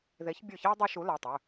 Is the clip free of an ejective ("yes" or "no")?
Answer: yes